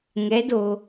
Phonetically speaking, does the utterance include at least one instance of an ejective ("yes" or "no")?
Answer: no